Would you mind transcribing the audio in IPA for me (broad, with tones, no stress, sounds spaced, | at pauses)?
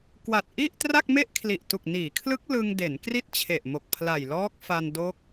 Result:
k w a˨˩ t̚ ʔ i˥˩ ʔ t r a˥˩ k̚ m e˥˩ ʔ kʰ l i˨˩ ʔ t u˨˩ k̚ n iː˩˦ kʰ l ɯ˦˥ k̚ l ɯ˧ ŋ d e˩˦ n k r i˥˩ t̚ t͡ɕʰ e˨˩ ʔ m o˨˩ k̚ pʰ l a˨˩ j l ɔː˦˥ k̚ f a˧ n d o˦˥ k̚